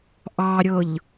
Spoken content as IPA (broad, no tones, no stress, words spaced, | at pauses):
ʔɑɾʲɤʎ